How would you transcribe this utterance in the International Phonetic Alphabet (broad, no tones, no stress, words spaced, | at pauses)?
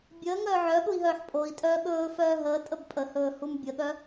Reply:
bʲəːŋœː ʕœɠui̯ɦœːħ pʼoi̯tʼœː ɠɵːfœː ɦəːtʼəb pʼəhɵːhum bʲəɠœ